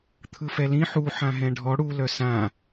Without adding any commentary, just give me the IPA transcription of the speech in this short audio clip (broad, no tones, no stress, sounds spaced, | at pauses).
t̪ʰ ɯ f ɛ l ĩ ħ u ħ ã ɦ ɛ̃ ɖʱ ɔ ɽ u l œ s ã